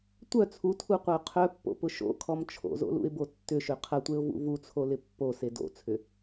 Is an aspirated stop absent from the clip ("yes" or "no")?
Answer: no